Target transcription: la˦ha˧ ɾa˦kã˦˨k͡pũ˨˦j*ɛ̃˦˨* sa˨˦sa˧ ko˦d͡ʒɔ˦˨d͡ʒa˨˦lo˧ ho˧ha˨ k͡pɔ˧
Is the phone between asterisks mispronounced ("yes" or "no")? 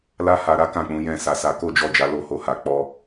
no